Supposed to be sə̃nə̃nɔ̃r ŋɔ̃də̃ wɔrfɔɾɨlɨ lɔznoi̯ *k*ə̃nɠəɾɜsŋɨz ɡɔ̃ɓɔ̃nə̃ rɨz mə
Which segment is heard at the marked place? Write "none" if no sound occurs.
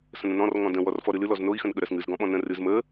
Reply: x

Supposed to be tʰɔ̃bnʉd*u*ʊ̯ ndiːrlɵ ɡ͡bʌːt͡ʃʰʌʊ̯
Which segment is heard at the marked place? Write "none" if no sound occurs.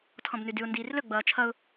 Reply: ʉ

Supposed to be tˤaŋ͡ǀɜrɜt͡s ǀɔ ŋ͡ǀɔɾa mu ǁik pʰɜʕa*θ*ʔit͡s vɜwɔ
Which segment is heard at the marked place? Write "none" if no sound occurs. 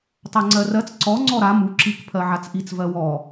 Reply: t͡s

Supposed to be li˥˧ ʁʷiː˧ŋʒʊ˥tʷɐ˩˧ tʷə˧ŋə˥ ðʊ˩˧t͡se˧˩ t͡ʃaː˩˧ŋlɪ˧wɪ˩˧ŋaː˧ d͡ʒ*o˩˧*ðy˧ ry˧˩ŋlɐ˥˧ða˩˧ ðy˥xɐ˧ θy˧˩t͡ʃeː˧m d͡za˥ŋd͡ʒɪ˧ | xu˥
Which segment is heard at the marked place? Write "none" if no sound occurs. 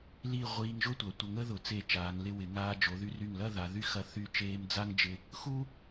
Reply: o˩˧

